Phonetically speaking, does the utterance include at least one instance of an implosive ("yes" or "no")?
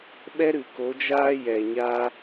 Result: yes